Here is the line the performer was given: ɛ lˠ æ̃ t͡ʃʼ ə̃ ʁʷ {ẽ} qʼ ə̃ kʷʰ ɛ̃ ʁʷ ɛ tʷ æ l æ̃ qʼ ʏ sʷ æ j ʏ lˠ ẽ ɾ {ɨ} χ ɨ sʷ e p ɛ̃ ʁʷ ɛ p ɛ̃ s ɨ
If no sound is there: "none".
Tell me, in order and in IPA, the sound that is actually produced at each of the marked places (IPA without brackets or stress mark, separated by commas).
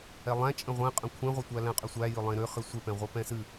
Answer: ɛ̃, ʏ